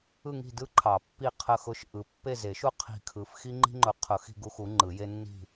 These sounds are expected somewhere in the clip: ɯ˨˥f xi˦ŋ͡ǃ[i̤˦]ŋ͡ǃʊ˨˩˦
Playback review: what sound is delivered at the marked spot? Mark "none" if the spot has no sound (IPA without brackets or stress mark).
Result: i̤˦